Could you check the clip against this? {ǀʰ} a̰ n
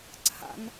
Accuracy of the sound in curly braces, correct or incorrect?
correct